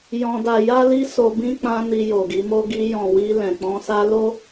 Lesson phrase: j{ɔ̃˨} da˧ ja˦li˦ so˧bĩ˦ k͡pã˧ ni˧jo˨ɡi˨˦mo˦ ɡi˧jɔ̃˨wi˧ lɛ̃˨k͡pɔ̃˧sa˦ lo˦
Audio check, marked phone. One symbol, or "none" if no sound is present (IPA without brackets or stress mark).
ɔ̃˧